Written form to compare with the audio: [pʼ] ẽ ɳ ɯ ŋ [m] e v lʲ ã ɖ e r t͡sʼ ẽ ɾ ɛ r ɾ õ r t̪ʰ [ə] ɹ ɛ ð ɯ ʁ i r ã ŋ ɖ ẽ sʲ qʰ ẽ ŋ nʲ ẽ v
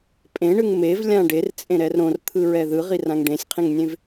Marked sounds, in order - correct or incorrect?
correct, correct, incorrect

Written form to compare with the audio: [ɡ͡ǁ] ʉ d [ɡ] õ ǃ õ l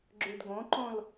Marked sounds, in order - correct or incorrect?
correct, correct

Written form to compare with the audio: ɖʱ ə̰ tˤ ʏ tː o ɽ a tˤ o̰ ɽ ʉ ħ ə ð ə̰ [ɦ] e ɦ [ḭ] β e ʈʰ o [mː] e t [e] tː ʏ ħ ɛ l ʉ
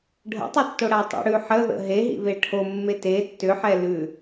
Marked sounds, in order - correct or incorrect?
correct, correct, correct, correct

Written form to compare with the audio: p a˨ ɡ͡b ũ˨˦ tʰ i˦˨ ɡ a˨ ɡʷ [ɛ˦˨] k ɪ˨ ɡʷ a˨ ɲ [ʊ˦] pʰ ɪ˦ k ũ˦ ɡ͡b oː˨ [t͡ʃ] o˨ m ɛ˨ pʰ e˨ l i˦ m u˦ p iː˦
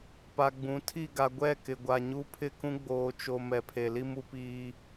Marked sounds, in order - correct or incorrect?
correct, incorrect, correct

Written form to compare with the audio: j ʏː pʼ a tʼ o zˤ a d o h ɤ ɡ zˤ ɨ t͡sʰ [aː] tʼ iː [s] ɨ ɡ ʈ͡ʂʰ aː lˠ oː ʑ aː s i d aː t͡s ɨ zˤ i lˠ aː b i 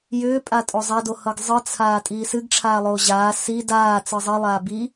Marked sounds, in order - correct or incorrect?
correct, correct

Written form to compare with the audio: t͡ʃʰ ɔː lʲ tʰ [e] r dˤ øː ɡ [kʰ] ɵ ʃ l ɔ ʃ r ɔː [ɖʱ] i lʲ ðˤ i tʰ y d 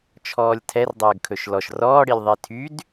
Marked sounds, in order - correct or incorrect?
incorrect, correct, incorrect

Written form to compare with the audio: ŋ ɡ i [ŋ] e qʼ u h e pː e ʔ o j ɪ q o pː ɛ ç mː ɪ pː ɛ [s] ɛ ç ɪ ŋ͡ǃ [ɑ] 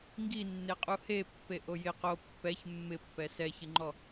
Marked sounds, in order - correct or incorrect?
incorrect, correct, incorrect

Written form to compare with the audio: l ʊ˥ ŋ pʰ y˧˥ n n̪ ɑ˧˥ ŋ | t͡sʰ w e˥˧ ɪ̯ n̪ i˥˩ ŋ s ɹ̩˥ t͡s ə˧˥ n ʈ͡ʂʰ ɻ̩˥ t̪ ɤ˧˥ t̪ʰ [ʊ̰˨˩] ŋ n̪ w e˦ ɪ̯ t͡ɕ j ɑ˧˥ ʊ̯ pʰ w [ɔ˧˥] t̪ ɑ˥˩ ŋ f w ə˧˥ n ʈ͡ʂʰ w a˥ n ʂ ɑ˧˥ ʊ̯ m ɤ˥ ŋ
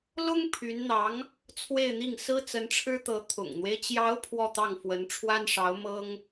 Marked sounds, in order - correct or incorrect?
correct, incorrect

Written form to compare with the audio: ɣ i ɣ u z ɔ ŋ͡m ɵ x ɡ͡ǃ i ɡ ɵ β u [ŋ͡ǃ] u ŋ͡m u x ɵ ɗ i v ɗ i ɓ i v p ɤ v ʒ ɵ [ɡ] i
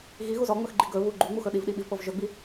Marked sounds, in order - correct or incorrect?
incorrect, incorrect

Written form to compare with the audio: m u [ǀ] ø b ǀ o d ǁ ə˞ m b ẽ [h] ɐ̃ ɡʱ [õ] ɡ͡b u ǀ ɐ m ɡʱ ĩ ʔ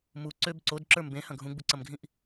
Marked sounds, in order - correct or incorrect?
correct, correct, incorrect

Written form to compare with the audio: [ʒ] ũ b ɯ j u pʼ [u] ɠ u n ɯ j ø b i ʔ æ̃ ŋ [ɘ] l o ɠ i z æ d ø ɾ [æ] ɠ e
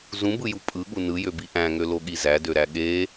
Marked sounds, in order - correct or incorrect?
incorrect, incorrect, incorrect, correct

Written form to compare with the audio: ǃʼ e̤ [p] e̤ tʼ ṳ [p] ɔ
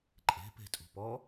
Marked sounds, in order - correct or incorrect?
correct, correct

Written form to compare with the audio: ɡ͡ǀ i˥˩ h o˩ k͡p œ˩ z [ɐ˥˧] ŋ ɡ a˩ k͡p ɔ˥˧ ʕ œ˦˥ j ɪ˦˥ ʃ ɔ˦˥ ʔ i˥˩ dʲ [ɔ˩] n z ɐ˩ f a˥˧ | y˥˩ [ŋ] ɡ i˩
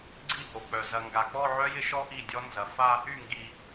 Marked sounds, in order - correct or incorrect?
incorrect, incorrect, correct

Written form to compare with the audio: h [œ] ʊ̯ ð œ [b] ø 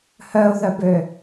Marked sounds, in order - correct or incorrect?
correct, correct

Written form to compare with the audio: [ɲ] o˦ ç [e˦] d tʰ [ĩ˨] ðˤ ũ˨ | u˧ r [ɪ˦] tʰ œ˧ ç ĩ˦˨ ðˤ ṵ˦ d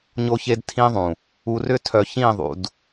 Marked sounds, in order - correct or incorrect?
correct, correct, incorrect, incorrect

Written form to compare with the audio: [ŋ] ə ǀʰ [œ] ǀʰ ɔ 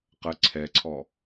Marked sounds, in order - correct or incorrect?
incorrect, incorrect

